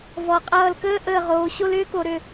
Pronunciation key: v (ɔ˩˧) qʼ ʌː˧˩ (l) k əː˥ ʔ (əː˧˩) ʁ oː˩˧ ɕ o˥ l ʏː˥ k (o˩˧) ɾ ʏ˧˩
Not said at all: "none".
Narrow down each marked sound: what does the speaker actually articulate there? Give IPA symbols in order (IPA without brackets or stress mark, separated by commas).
ɔ˩˧, l, əː˧˩, o˩˧